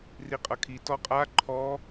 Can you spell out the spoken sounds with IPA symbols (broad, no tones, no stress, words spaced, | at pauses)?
riqʼʌkʰi tɔqʼa ǃʰɔ